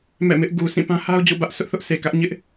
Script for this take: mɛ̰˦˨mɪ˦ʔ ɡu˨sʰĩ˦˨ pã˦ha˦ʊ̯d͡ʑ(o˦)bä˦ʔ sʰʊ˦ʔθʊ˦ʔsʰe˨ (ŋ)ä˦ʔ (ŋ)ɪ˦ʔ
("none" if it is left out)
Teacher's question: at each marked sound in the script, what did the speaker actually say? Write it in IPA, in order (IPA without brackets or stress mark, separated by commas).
o̰˦˨, k, ɲ